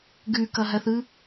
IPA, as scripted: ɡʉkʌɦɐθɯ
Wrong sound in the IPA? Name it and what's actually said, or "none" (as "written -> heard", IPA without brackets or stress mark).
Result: none